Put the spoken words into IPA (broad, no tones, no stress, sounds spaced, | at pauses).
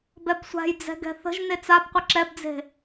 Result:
b ɛ b sʷ a̤ j d͡z ɛ̤ ɡ ɛ̤ θ ə̤ ʒ n e t͡s a b qʷ ə ǁ ɛ b d͡z e̤